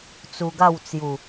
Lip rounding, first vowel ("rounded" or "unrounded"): rounded